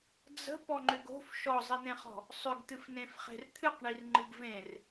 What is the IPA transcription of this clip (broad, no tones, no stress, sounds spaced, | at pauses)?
d͡z ə̤ p ɔ ŋ͡ǃ ʏ ɡ o̤ f ʃ ɔ zˤ i n̪ ẽ χ ɔ̤ | sˤ ʏ ɡ t̪ ɨ f n ẽ f χ e̤ r t̪ʰ ɨ q ɳ i r ŋ͡ǃ ɨ ɡ v ẽ r